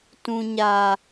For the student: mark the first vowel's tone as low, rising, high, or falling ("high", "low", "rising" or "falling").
low